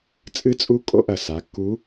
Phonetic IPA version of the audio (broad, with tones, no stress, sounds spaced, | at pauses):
t͡sʼ ɨ˧˥ t͡sʼ u˧˥ kʼ o̰˧˥ ʔ ɐ˩ s a˩˧ kː u˧˥